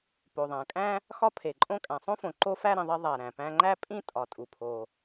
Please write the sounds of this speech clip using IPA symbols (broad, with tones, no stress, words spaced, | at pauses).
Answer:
po˩ðˤæ̃˩kʼæ̃˥ | xɒ˥pʰe˩ǃʼõ˥ kʼæ̃˩sˤõ˥fõ˩ ǃo˥fæ˥ ɾĩ˩ðˤi˥ ðˤæ˩ ɾæ̃˩pæ̃˥ ŋ͡ǃæ˥pʼĩ˥ tʼɒ˩tʼu˩pʰo˩